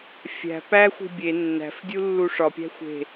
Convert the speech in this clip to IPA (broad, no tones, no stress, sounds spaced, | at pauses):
fʲ æ̤ p æ xʷ i̤ bʲ e nː æ̤ f dʲ u lː u ʂ ɒ pʲ æ̤ xʷ e̤